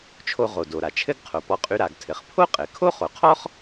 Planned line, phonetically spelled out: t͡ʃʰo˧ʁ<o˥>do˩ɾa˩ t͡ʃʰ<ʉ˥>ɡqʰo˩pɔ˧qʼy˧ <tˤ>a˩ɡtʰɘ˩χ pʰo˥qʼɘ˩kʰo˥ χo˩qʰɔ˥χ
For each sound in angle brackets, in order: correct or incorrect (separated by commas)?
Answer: incorrect, incorrect, incorrect